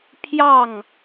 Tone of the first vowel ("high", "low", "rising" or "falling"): falling